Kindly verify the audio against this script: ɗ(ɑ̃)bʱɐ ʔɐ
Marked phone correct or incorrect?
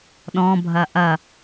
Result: incorrect